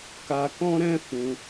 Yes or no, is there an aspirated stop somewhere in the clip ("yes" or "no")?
no